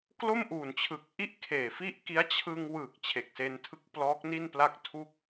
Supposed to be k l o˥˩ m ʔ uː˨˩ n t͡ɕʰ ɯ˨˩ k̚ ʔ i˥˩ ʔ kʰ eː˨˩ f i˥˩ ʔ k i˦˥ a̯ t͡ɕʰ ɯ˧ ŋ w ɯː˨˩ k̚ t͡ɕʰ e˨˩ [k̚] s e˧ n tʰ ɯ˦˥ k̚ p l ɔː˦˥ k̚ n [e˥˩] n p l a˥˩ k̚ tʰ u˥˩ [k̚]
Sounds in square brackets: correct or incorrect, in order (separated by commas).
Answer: correct, incorrect, correct